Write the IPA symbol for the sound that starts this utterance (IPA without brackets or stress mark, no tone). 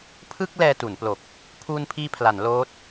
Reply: pʰ